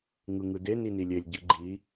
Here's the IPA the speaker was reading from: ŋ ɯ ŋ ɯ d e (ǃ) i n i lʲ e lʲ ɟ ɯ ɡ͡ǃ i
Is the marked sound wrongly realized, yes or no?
yes